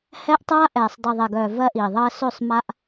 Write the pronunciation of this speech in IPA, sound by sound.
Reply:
h ɛː˦ ʔ tˤ aː˦ ʔ ɛː˨ sˤ dˤ i˨ ðˤ ɛ˨ ɡ œː˨ v ɜ˦ ʔ iː˨ ðˤ ɜː˦ s ø˦˨ sˤ m a˦ ʔ

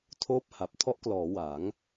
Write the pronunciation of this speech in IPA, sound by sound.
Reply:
tʰ oː˥˩ p̚ h a˨˩ p̚ tʰ ɔ˦˥ ʔ k l ɔː˩˦ w a˩˦ ŋ

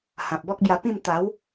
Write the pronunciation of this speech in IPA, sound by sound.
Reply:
h ã˨ p̚ b ɔ˦ k̚ b j a˧ p ĩ˥˧ m t̪ a˨˦ w

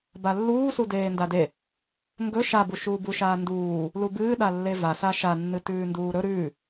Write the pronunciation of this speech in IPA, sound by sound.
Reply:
b a lː uː s u d eː n d a d e | ŋ ɡ ɵ ʃ a b u ʃ uː b u ʃ aː n d uː | l u b ɨː ɗ a lː e v a s a ʃ a nː ɨ t ʉː n d uː ɾ ɵ ɾ ʉː

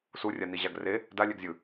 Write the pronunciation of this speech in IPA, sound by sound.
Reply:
s u rʲ a n i ʑ a ɡ r e | d a lʲ ɛ ɡ zʲ ɯ

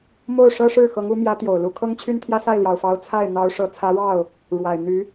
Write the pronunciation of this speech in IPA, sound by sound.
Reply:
m o˥˩ ʊ̯ ʂ ɤ˥ ʂ ɻ̩˥˩ x ɤ˧˥ ŋ u˧˥ m j ä˧˥ t̪ j o˨˩ ʊ̯ l u˧˥ kʰ ɤ˥ ŋ t͡ɕʰ y˥ n t̪ʰ j ä˥ s a˥˩ ɪ̯ l j ɑ˨˩ ʊ̯ f ɑ˧˥ ʊ̯ t͡sʰ a˥˩ ɪ̯ n̪ ɑ˧˥ ʊ̯ ʂ ɤ˨˩ t͡sʰ ä˧˥ ɻ ɑ˥˩ ʊ̯ | ɻ w a˨˩ ɪ̯ n̪ y˧˥

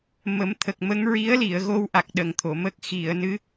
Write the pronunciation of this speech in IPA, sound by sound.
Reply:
m ə˨˩˦ m t̪ʰ ə˨˩ k̚ m ə˧˥ ŋ ɹ i˧˥ ə̯ l i˨˩˨ ə̯ ɣ o˧ w ʔ a˨˩ k̚ ɗ ə˨˩ ŋ t̪ʰ o˨˩˨ m ə˦˥ k̚ x i˨˩˨ ə̯ n ɨ˧˥

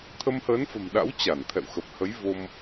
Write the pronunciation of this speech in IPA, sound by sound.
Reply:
t̪ʰ ə˧ m h əː˨˦ n f ə̤˨˩ m ɗ a̰˧˥ w t͡ɕ a˧˩ n t̪ʰ ɛ̰˧˨ w x ə˨˩ p̚ h ə˨˦ j v o˧ m

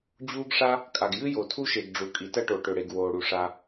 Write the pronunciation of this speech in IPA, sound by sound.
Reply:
d͡ʑ uː˥ ɡ ʂ a˥ | kʼ a˩ ɡ j ɨ˥ j o˩ tʰ u˥ ʃ e˩ ɡ ɖ͡ʐ u˩ kʼ i˩ t ɐ˥ ʈ o˩ ʈ ɵ˩ ɽ e˩ ɡ w oː˩ ɽ u˩ ʂ a˩

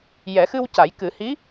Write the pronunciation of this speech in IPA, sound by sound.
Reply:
j ɛ˨˩˦ x ɨ˧ w c a˨˩˦ j k ɨ˨˩˦ h i˧˥

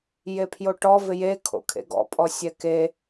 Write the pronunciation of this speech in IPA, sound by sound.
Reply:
j e pʰ j o ʈ ɔ v ɪ j e kʰ o̰ kʰ ḛ ɡ ɔ̰ pʼ ɔ sʲ ɛ k e

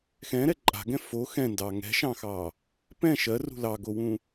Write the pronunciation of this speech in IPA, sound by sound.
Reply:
x ɛ̃ ɾ ɛ ǃʼ a̤ ɡ ɛ̃ f o x ɛ̃ n d ɑ ŋ ɛ̤ ʃ ɑ̃ x ɑ | p ɛ̃ ʃ ɜ r ṳ l ɑ ɡ o w ũ

